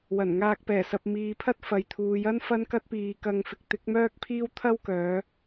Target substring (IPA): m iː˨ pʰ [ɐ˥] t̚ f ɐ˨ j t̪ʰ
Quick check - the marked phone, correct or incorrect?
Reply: correct